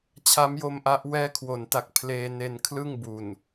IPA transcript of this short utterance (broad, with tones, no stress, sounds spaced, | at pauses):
t͡ɕʰ a˦˥ m j o˧ m ʔ a˦˥ ʔ w ɛː˦˥ kʰ w o˩˦ n t a˨˩ k̚ pʰ l eː˧ n e˧ n kʰ l ɯ˥˩ ŋ b u˨˩ n